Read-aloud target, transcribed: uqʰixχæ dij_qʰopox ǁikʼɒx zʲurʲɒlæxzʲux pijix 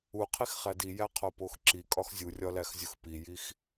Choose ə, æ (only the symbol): æ